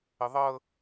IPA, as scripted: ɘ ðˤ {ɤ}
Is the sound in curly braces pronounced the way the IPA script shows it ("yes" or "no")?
yes